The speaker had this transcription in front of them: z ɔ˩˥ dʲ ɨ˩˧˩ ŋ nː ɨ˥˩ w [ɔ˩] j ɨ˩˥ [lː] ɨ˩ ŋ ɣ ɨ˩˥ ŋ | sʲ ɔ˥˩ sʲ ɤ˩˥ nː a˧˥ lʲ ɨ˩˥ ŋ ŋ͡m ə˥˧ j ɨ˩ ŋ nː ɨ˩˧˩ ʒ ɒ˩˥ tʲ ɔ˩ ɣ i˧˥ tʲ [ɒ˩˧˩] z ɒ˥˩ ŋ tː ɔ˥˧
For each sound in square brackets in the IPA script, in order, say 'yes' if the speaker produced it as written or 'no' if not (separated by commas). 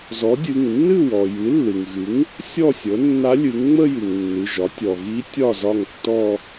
yes, yes, no